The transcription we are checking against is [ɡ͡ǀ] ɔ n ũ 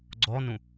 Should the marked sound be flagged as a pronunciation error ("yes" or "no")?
no